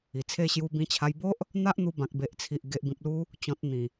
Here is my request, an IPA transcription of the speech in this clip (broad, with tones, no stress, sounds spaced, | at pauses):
i˨˩ t͡sʰ e˥˧ ɕ j u˧ b ĩ˧ t͡ɕʰ a˧ j b o˦ ʔ | n̪ a˦ ʔ n̪ u˧ b ã˨ k̚ b e˨ ʔ t͡sʰ i˨ ʔ ɡ e˨ ʔ b ĩ˨ p̚ l u˧ | t͡ɕ ɔ̃˨ t̚ n̪ ĩ˨˩